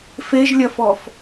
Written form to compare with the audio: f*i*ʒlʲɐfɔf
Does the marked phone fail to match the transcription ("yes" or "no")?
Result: yes